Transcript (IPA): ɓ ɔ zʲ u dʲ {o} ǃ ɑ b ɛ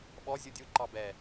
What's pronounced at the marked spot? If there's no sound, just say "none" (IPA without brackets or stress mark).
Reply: u